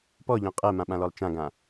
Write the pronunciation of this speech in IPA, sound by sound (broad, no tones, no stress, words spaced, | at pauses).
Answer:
pɔʎɔ̃ qʼɜmãɓãlɔlˠ t͡ʃãɡã